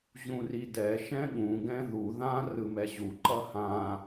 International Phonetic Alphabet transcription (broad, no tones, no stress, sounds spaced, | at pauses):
ʑ ũ r i d ɛ ʃ ɛ̃ ɠ ũ ɡ ɛ̃ ð u ð ã r ɯ m ɛ ʑ u ǃ ʌ h ã